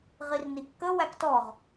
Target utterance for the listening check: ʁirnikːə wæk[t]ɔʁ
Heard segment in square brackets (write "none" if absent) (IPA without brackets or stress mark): t